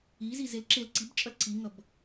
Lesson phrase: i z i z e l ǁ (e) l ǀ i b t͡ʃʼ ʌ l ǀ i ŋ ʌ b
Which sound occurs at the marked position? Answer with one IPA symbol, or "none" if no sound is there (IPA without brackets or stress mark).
e